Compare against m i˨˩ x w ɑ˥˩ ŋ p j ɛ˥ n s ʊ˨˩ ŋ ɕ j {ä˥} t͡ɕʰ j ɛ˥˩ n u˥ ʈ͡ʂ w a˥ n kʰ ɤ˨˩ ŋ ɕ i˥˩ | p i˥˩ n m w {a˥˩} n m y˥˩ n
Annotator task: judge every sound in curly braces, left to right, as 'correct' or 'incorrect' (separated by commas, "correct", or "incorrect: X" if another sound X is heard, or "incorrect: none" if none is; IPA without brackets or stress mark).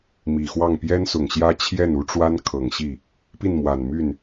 correct, incorrect: a˨˩